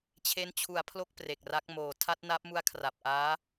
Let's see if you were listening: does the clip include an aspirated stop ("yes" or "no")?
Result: yes